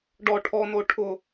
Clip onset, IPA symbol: ɖ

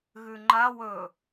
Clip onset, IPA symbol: ɣ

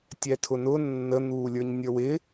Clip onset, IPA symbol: tʲ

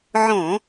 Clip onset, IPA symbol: ʕ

